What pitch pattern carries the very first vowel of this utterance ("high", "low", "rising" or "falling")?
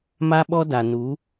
high